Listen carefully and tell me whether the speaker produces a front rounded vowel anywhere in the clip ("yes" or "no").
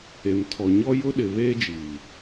no